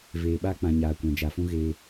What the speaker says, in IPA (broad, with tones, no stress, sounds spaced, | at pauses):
v eː˨ ɓ a˦ k͡p ã˨ ɲ aː˨ kʷ ã˨ d͡ʒ a˨ f ũ˦ ɣ e˦